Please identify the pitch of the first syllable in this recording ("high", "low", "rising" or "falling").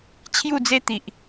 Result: falling